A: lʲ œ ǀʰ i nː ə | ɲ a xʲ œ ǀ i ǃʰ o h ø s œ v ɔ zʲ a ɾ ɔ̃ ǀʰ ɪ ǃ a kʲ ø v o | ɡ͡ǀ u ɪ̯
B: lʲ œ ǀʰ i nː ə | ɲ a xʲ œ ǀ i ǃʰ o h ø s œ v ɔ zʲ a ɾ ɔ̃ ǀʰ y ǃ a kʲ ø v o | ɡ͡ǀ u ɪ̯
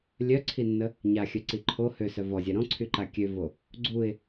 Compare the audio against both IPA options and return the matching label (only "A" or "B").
B